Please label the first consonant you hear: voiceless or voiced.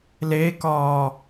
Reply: voiced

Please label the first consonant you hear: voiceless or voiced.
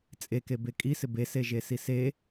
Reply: voiceless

